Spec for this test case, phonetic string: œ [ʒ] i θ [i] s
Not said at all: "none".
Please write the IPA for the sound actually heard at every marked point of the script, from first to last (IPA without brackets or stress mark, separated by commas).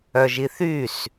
ʒ, y